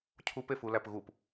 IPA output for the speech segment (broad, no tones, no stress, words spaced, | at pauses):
cʰupefu læpɣup